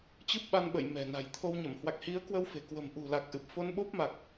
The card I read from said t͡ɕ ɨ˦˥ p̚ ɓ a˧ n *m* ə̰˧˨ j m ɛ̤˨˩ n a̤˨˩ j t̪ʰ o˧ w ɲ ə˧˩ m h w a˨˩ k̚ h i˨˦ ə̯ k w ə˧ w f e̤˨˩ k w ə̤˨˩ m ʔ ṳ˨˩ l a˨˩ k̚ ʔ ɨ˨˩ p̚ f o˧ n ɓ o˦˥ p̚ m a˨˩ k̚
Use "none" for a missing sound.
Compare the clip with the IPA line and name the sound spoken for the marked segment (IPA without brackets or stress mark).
ɓ